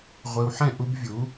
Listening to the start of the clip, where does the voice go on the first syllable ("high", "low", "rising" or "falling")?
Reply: low